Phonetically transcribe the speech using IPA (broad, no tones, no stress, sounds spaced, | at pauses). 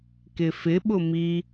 k ɪ f ɪ ɓ ʊ m i